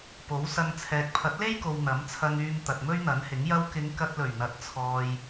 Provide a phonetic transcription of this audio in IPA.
p o˨˥ w s ɐ˧ ŋ t͡sʰ ɛː˨ k̚ pʰ ɐ˨˥ t̚ l e˥ j k o˨ w n̪ ɐ˨˥ m t͡sʰ ɐ˧ ŋ yː˧ m t̪ ɐ˨ t̚ m ɵ˥ ɥ n̪ ɐ˨˥ n h ɪ˨˥ ŋ j ɐ˧ w k ɪ˨˧ ŋ k ɐ˧ t̚ l ɵ˨˩ ɥ n̪ ɐ˨ t̚ t͡sʰ ɔː˨ j

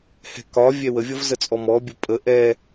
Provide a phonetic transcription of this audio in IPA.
h ɛ̤ k ɒ vʲ ɛ w ə vʲ ʌ v z ə t͡sʼ ɔ m ɔ bʲ ʊ pʼ ə ʔ ɛ

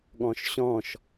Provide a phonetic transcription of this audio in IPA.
ɠ ɔ̃ ʃ ɕ ɔ̃ ʃ

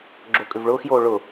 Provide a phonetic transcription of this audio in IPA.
ɡ͡ǁ o kʼ ʏ v ɭ ʊː x j oː ɭ ʊ

